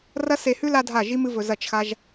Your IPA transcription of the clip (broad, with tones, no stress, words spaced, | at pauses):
rɐ˦se˧hʉ˦ la˦dʱa˦˨ ʒi˦mɨ˦vɵ˧ zɐ˦˨t͡ʃxa˦ʒ